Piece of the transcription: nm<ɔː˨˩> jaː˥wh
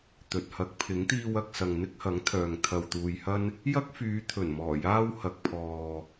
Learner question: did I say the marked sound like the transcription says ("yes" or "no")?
yes